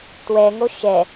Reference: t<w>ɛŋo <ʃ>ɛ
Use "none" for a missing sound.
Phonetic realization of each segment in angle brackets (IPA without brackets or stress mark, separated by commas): w, ʃ